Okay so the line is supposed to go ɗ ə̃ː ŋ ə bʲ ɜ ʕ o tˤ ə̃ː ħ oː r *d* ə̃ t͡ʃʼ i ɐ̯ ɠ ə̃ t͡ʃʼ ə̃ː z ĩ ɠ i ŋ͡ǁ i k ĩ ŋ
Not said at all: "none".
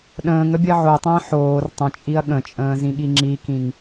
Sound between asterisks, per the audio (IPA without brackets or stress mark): tˤ